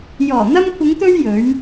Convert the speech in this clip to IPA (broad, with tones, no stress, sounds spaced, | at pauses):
j ɔː˨˩ n̪ ɐ˧ m kʷʰ ɪ˨˧ ŋ t̪ ɵ˧ ɥ j ɵ˨˥ ɥ